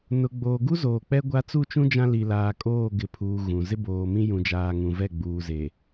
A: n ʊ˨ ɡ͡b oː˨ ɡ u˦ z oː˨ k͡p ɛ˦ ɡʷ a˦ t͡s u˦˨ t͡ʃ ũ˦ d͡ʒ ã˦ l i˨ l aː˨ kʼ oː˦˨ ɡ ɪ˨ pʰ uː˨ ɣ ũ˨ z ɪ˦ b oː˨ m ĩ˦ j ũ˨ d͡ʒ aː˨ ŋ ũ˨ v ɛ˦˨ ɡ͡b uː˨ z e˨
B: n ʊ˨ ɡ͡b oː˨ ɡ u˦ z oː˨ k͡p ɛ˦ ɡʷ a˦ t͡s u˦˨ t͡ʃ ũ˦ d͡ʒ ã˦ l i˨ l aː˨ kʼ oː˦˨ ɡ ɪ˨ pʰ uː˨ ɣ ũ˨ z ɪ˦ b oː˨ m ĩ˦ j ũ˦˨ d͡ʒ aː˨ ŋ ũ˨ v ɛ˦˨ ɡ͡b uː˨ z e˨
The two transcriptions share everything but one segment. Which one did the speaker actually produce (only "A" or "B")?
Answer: A